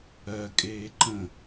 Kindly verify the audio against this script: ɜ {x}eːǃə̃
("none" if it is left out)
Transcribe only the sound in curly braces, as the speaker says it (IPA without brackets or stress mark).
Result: kʼ